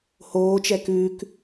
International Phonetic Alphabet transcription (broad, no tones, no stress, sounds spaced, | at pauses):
h oː t͡ʃ ɛ k ʉː k